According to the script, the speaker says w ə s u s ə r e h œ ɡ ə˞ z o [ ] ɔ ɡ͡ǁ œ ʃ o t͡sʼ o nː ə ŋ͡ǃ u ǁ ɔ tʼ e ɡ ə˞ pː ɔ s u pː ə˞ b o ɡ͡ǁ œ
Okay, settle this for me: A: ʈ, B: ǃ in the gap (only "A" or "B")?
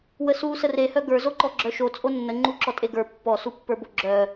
B